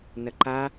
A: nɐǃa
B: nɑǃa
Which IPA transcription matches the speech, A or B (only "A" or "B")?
A